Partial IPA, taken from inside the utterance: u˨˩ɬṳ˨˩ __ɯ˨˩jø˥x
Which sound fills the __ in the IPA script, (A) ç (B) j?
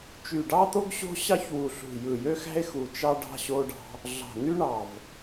B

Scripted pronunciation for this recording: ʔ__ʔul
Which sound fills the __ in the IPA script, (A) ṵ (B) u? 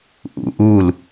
A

